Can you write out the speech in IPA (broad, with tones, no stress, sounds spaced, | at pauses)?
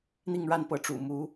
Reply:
n̪ i˥˧ ŋ ɻ a˥˩ n p ɤ˧˥ ʈ͡ʂ ṵ˨˩ m u˧˥